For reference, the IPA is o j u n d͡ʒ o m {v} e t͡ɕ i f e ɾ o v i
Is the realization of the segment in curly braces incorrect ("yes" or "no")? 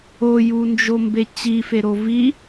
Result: yes